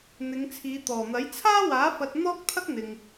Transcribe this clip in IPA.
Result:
n̪ɪ˨˧ŋt͡sʰiː˨˧t̪ɔː˨˩n̪ɐ˨˥j t͡sʰaː˥waː˨˥ fɐ˧t̚n̪ɔː˥k̚t̪ʰɐ˥k̚ n̪ɪ˨ŋ

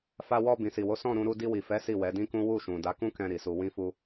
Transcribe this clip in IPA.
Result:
fa˧wɔ˧ bĩ˨si˨wo˨˦ sɔ̃˦˨ɾũ˧ ɾu˧di˧wi˨fɛ˨˦ si˦˨wɛ˨˦dĩ˦kũ˦ wu˦˨ʃũ˨ da˨˦kũ˦kɛ̃˧ ɾi˨su˧wĩ˦fu˦

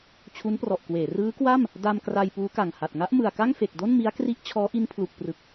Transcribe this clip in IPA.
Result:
t͡ɕʰu˦˥nprɔ˨˩ʔkweː˩˦ rɯː˦˥kwa˥˩m | da˧m kra˧jpuː˦˥ka˨˩ŋha˨˩t̚ ŋa˦˥ʔmɯ˨˩a̯ka˥˩ŋ fe˨˩k̚do˥˩nmi˦˥a̯ kri˦˥ʔ t͡ɕʰɔː˦˥ʔi˦˥npʰlu˨˩k̚ prɯ˨˩k̚

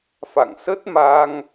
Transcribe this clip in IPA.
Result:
fa̰˧˨ŋsə˦˥t̚ma˧ŋ

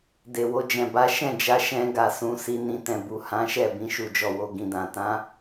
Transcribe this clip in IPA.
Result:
de˨wo˧d͡ʒɛ̃˨ ba˨˦ʃɛ̃˦˨d͡ʒa˨˦ ʃɛ̃˧ɡa˨ sũ˧si˧ nĩ˨ tɛ̃˨bu˨ hã˨˦ʃɛ˦˨bĩ˧ ʃu˨d͡ʒɔ˨wo˨ ɡĩ˨dã˨ tã˨˦

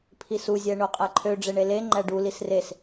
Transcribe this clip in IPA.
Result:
pʰisu zʲæɳoqʼæǃʰø ɖ͡ʐeɳele ŋ͡ǃæɖu lisres

